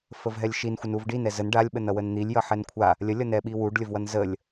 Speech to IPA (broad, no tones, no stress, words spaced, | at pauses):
fəvɦɛlʲʃin xʷənuvɖin ɛzən ɖalʲɓən ʌwənn̪ilʲjʌ ħɛnkʷʰa | lʲəlʲʌ nɛɓiwuɖlʲəv wʌnzəlʲ